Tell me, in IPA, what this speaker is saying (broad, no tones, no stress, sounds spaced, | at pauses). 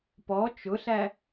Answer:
p ɔ t͡ʃ ʊ ɬ æ